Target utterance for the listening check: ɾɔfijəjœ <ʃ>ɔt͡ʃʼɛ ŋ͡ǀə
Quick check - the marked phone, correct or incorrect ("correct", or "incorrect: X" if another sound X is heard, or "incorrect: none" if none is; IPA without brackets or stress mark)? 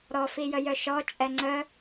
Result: correct